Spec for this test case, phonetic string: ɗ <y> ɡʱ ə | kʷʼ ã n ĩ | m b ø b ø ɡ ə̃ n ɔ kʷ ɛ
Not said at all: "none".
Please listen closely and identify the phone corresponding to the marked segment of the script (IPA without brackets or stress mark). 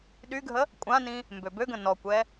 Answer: y